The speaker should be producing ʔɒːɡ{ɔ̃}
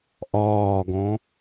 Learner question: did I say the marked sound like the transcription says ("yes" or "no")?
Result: yes